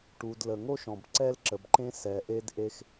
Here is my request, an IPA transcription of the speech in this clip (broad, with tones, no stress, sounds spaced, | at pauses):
ʈ u˩ d l ə˩ ŋ o˥ ʃ ɔ̃˩ b ǀ ɛ˥ l ǁ ə˩ b ǃ ẽ˥ s ɛ˩ ʔ e˥ d ʔ e˥ x